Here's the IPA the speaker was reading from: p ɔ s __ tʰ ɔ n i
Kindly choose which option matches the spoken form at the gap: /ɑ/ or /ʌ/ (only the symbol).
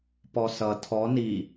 ʌ